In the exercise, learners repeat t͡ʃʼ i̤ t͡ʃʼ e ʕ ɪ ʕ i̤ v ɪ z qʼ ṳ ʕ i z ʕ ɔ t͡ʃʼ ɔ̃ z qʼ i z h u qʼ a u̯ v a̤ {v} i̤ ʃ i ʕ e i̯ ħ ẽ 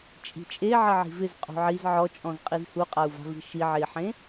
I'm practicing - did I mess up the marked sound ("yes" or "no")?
no